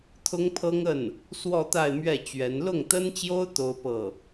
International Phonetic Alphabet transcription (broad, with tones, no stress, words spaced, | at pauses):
t̪ʰʊ˥ŋpʰɤ˥ŋə˥˩n | swɔ˥˧t̪a˥˧ɪ̯mɥɛ˥˩ t͡ɕɥɛ˧˥n lʊ˥˩ŋt̪ə˥nt͡ɕjo˥ʊ̯ t̪o˥ʊ̯pɤ˥˩